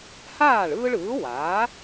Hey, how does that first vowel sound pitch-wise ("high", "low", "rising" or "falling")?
falling